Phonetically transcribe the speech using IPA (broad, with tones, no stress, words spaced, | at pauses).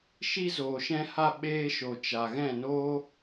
ʃi˧zoː˨ʃɛ̃˧ha˧ ɓeː˧ ʃo˨t͡ʃa˨ɣɛ̃˦˨noː˦